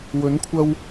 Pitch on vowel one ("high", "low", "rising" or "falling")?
rising